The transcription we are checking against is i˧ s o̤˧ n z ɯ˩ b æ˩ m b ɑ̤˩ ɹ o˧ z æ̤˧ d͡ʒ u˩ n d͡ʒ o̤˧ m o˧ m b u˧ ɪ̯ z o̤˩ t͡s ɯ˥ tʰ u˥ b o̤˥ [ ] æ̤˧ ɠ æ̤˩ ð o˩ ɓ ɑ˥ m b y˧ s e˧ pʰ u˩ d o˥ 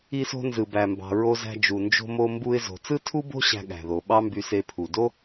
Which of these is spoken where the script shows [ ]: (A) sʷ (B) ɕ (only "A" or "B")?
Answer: B